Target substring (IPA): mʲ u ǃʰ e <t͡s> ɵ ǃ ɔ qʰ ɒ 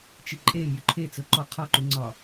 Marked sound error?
no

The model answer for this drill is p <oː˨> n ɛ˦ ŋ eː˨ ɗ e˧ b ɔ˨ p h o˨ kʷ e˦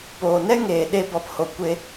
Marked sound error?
no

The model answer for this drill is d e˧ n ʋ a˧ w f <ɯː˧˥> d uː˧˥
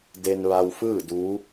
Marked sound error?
yes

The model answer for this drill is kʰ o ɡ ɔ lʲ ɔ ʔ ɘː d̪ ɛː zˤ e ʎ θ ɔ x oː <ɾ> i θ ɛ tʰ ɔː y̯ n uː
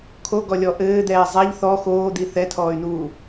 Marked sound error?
yes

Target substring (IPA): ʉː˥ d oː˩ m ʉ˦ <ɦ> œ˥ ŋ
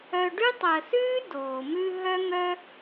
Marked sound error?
no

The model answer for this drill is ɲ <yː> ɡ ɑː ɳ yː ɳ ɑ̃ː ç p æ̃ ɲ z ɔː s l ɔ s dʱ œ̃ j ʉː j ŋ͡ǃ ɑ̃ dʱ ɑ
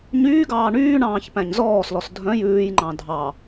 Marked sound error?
no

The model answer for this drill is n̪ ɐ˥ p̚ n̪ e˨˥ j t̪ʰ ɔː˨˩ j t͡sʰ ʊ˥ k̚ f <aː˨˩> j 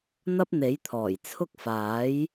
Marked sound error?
yes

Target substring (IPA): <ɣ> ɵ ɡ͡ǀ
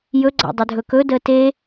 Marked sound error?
yes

